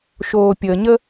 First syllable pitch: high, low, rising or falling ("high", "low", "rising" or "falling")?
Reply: low